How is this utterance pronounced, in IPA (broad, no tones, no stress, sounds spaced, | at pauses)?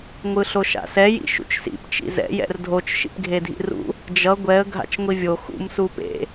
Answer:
ŋʷ ɯ ɬ o ʃ a̰ s ɛ j ḭ ʃ ṵ t͡ʃ s ḭ p t͡ʃ ḭ z ɛ̰ j ɛ̰ r dʱ o t͡ʃ ʃ ḭ p ɡʱ e dʱ ḭ r ṵ | d͡ʒ ʌ ɡʷ ɛ ə̯ ɡʱ a̰ t͡ʃ ŋʷ i vʲ o x ṵ m s u p ḛ